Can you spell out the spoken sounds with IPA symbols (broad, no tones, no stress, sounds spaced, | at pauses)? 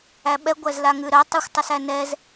æ ɓ ɛ ɡʷ æ z l a ŋ ʉ ɾ ɜ tˤ ɜ xʷ tˤ ə s æ n ɛ z